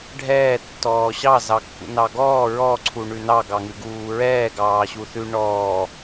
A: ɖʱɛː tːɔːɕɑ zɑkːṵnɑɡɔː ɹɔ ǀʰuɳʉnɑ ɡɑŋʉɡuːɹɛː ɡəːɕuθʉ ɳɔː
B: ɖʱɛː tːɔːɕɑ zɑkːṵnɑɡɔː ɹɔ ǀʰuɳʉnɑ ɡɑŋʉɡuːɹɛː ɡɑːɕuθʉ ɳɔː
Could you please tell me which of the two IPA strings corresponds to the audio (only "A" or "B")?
B